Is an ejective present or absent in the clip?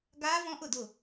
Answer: absent